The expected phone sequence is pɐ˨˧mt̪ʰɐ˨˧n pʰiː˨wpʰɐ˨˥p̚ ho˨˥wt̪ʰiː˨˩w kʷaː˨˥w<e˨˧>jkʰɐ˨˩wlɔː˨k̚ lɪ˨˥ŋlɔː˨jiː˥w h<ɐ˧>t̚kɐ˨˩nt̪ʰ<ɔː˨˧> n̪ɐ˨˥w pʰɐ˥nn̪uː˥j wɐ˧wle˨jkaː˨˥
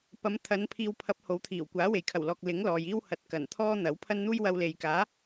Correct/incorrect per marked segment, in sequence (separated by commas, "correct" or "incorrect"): incorrect, incorrect, incorrect